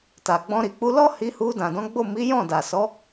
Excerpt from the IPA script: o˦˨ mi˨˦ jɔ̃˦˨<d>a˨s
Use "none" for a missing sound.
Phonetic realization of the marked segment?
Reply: d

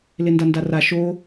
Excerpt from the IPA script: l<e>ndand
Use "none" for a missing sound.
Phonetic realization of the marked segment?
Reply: e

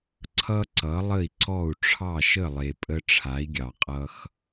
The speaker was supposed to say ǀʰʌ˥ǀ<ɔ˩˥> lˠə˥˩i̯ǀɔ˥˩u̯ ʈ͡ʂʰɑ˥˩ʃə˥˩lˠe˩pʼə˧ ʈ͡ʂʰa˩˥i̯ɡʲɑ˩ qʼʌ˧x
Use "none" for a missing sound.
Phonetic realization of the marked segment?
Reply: ʌ˩˥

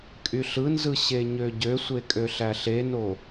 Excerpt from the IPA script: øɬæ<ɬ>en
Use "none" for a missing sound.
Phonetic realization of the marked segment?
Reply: ɬ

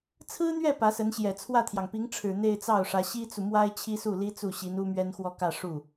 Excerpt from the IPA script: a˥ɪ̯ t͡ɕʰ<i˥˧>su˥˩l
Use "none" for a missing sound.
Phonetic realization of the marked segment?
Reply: i˥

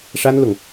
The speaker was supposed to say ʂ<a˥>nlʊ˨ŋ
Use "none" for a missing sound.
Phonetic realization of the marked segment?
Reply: a˥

